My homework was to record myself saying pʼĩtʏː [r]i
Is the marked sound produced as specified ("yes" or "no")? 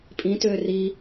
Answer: yes